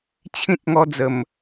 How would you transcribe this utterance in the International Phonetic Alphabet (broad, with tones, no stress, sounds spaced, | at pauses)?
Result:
t͡ɕʰ ĩ˦ t̚ ŋ ɔ˦ d͡z ə˨˩ m